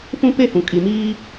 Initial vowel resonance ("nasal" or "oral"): nasal